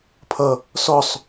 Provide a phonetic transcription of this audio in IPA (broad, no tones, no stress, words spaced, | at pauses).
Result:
pʰʌ | sɔsˤ